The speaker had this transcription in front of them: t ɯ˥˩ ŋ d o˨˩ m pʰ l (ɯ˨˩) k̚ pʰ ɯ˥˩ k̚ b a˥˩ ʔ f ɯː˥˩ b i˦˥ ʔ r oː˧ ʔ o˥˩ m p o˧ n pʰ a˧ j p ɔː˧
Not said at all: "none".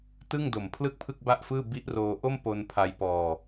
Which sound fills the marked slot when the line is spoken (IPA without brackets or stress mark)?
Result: ɯ˥˩